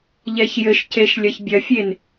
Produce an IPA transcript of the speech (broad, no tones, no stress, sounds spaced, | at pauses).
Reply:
ʎ ɛ ç j ɘ ʃ c e ʃ lʲ ɐ ç bʲ ɐ fʲ e n